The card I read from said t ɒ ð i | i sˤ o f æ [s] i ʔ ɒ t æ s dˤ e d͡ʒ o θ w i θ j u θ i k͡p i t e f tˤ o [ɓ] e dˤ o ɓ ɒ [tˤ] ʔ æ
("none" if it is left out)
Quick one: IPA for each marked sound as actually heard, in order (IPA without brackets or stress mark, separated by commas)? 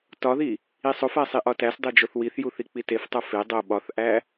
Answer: sˤ, f, θ